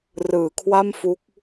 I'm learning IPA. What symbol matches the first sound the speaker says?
r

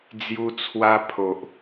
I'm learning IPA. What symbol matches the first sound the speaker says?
d͡z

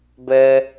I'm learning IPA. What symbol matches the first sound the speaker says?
b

